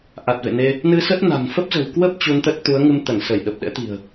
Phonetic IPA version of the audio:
ʔ a˨˩ t̚ v ḛ˧˨ n e˧ | n ɨ˧ s ə˦˥ t̚ n a̤˨˩ n f ə˦˥ p̚ z ə̤˨˩ w k w ə˦˥ p̚ t͡ɕ u˧ n t̪ ə˦˥ t̚ t̪ u˨˦ ə̯ ŋ ɨ˧ m t̪ ə˧˩ n s ə˧˩ j ɗ ə˨˩ p̚ ɗ ɛ̰˧˥ t̪ i̤˨˩ ə̯

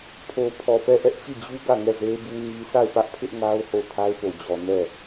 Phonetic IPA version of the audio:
pʰ o˨ pʰ ɔ˨ p ɛ˦˨ ʔ ɛ˦ ʔ t͡ɕ i˦˨ d͡ʑ u˦ ɡ ä˦˨ ŋ ɛ˦˨ z e˦ b u˦ ɲ i˦ sʰ a˦˨ ɪ̯ p ä˦ ʔ pʰ ɪ˦ ʔ ŋ a˦ ʊ̯ h o˦˨ tʰ a˦ ɪ̯ p o˨ d͡ʑ ɔ˨ n ɛ˦˨

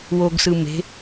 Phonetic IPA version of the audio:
w o ɡ s ɯ m e̤

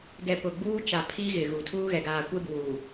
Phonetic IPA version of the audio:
ɡ ɛ˨ p ʊ˨ ɡ͡b uː˦ t͡ʃ a˨ pʰ i˦ ɣ ɪ˨ ɣ u˨ tʰ uː˦ ɣ ɛ˨ ɡ aː˨ kʷ e˦ b uː˨

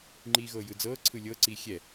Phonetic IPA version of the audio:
ŋ͡ǃ iː ɣ ɤː j ɯ d͡z ɤː ǀʰ ɯ lʲ ɤ ǀ iː xʲ ɛ

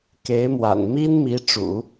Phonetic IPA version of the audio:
k e˧˥ ɪ̯ m w a̰˨˩ n m i˥ n m i˧˥ ʈ͡ʂ ṵ˨˩˦

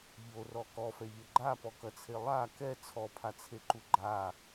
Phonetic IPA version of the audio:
ʎ o r ɔ k ɔ f ɛ ʎ ɐ ɡ͡ǃ a p ɔ k ɐ t͡sʰ e lˠ a k ɛ t͡sʰ ɔ pʰ a t͡sʰ e ǃ u ɡ͡ǃ a

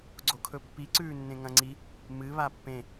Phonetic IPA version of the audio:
ɡ͡ǀ o kʰ ɵ pː i ǀ ʉː nː ẽ ŋ ɐ̃ ŋ͡ǀ i | m ɨ β a pː ẽ

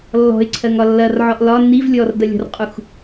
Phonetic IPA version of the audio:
lː ɔ̤ ɪ̯ ǀʰ ɜ ŋ ɒ lː ɐ r ʕ ɔ ʔ l ɒ n i v lʲ ɔ r d ɐ lʲ ɔ̤ r qʼ u x

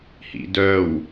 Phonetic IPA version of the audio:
h ḭ d œ w

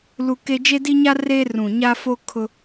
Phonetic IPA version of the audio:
l u˦ k e˦ d͡ʒ e˦ d i˦ ɲ a˦ r eː˦ r ũ˨ ɲ a˦ f o˦ kʰ ʊ˦

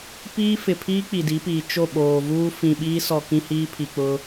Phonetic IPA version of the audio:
p iː˦ f ɪ˨ pʰ iː˦ k͡p i˨ d i˨˦ p iː˨ t͡ʃ o˦˨ ɓ oː˨ v uː˦ f ĩ˨ ɓ iː˦ s ɔ˨ k ĩ˦ h iː˦ pʰ i˨ k͡p ʊ˦

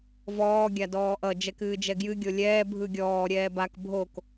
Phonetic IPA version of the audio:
v ɔː ɡʲ a d ɔː ʔ ʌ d͡ʒ ɛ k ɨː d͡ʒ ɛ ɡ j ɨ ɡʲ o lʲ ɛː bʱ ɯ ɡʲ ɔː ɾʲ ɛː b a k bʱ o k

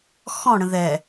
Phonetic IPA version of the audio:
x ɔ̃ ɽ ə̃ ð ɛ

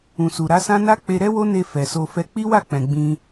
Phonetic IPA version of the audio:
ũ˨ s u˨ ɾ a˨˦ s ã˦ n a˦ k͡p e˧ ɾ ɛ˦ w o˦ n e˧ f ɛ˨ s o˧ f ɛ˧ k͡p i˦ w a˦˨ k͡p ɛ̃˨ ɡ͡b ĩ˧

